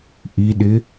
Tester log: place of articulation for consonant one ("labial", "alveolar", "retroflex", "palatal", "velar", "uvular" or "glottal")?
glottal